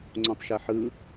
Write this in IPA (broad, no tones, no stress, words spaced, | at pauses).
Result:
ŋ͡ǀõtˤʃɛħɯ